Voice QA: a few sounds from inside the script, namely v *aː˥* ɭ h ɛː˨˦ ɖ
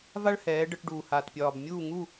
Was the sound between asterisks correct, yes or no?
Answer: no